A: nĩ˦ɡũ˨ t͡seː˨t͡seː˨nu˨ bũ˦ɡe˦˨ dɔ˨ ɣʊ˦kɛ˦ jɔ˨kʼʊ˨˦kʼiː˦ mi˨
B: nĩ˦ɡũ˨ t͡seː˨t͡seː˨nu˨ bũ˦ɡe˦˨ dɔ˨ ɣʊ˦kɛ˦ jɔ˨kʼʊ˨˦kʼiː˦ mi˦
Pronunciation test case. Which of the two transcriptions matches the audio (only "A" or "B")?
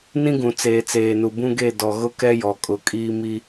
B